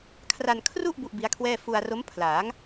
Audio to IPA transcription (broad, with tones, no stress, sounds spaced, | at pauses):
kʰ r a˧ n kʰ r u˥˩ ʔ b u˥˩ ʔ b i˦˥ a̯ kʰ w ɛː˥˩ f u˧ a̯ r o˦˥ m pʰ l aː˩˦ ŋ